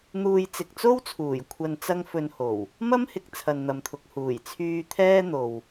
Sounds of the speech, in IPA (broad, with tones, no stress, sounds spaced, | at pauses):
n̪ uː˧ j t͡s ɪ˨ k̚ t͡s o˥ w t͡sʰ uː˨˩ j kʷʰ ɐ˧ n t͡s ɐ˥ ŋ f ɵ˧ n h o˨˩ w | m ɐ˥ m h ɪ˨ k̚ t͡sʰ ɐ˨ n n̪ ɐ˨ m t̪ʰ ʊ˨ k̚ h uː˨˩ j t͡sʰ yː˧ t̪ʰ ɛː˥ n̪ o˨ w